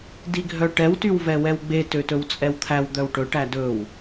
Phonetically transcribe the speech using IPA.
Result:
d i ɡʱ œ ʈ ɛ w t y w v ɛ w ɛ w ɡ͡b e t ø t ɵ w t͡sʼ ɛ w t̪ʰ æ w d̪ œ w ʈ ɵ ʈ æ d ɵ w

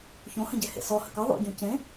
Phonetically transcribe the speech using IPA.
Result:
ç õ h ə̃ ɟ ɛ h ḛ s ɔ h ə̰ k ʌ ðˤ o̰ ɟ õ c ẽ

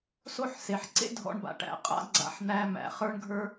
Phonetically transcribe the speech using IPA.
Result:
s o˥ ħ s e˩ ħ ǀ ḛ˥ dʱ ɔ̰˧ ɳ b a̰˩ ʈ æ̰˩ qʼ a̰˧ ɡ͡ǀ a̰˧ ħ n̪ æ˧ m æ̰˩ χ ə˞˥ ɳ ɡʱ ə˞˥

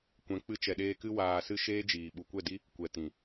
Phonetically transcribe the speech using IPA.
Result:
kʷ ɛ̃˨ k͡p ɨ˧ t͡ʃ ɛ˨ ɗ eː˧ k ɨ˧ w aː˨ s ɨ˧ ʃ eː˦ d͡ʒ iː˨ ɓ u˨ kʷ ɛ˦˨ d i˦ | kʷ ɛ˨ t ĩ˨

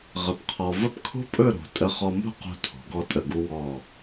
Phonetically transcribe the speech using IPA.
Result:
ʁ ə˧˩ p qʰ ɔ˧ v ə˥˧ p kʰ o̤˥ pʼ ɵ˥˧ ɾ o̤˩˧ tʼ ə˧ χ ɔ˧ m o̤˥˧ q o̤˧ tʰ o̤˩˧ ɡ ɔ˧ tʼ ə˧˩ ɡ u˧ w ɔ˧˩

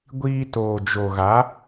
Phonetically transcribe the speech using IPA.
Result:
ɡʷ iː˧ t oː˨ d͡ʒ o˨ ɣ a˨˦

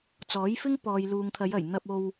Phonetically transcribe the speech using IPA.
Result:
t͡s ɔː˨˥ j f ɪ˥ ŋ p ɔː˨ j l uː˨ ŋ t̪ʰ ɐ˨˧ j ɐ˨˩ j n̪ ɐ˧ p̚ o˧ w

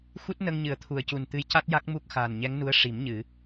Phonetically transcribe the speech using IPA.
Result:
x u˦˥ t̚ n ə˧ ŋ ɲ ɨ˨˩ ə̯ t̪ʰ u˨˩ ə̯ c u˨˩ n t̪ ɨ˧˥ j c a˦˥ t̚ j a˦˥ k̚ m u˦˥ k̚ x aː˨˩ n ɲ ɛ˧˥ ŋ n u˧˥ ə̯ ʂ i˨˩˦ m ɲ ɨ˨˩˦

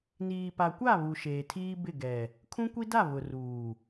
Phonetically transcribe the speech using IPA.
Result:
n iː˨ p a˨ kʷ a˦˨ β u˨ ʃ eː˨ tʰ iː˦ b ɪ˦˨ ɡ ɛ˨ | kʰ ũ˦ kʷ i˦ d a˦˨ β ʊ˨ r uː˨

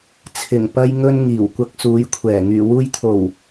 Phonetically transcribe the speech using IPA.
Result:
t͡sʰ ɪ˨˩ ŋ p ɐ˧ j ŋ ɵ˧ n ŋ iː˨˩ w kʷ ɐ˧ k̚ s uː˨˧ j kʷʰ ɛː˨˩ ŋ yː˨˩ w uː˧ j t̪ʰ o˨˩ w

